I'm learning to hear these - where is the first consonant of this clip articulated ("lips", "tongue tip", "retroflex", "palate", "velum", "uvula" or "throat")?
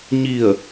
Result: palate